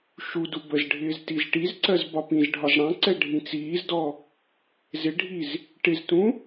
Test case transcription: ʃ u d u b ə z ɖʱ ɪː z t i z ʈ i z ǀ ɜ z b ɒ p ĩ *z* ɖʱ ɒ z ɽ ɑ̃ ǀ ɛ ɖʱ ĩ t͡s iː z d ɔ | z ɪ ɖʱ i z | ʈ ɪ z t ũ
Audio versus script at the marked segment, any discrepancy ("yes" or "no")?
no